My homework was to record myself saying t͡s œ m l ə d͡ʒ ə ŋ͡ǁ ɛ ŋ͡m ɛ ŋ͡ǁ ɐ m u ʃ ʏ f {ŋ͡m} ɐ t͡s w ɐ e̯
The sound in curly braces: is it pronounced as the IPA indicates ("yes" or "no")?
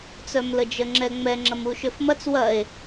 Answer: no